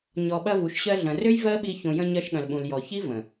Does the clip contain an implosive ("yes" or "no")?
yes